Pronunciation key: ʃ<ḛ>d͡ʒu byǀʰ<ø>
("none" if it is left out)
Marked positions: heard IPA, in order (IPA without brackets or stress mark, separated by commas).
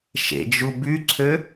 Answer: ḛ, ø